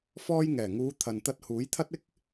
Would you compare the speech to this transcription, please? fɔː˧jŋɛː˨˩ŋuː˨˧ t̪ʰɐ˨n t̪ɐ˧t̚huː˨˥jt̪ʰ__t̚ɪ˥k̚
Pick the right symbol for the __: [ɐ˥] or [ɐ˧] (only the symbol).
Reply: ɐ˥